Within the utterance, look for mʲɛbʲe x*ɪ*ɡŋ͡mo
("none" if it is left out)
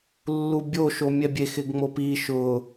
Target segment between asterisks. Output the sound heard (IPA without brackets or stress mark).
ɪ